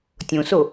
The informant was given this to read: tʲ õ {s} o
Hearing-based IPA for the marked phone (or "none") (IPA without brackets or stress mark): s